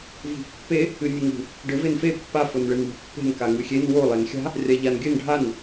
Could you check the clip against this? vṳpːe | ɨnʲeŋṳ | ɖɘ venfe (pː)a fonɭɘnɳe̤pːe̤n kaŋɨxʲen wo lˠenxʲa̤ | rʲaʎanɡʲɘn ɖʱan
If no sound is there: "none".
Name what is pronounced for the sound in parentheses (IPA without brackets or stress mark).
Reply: pː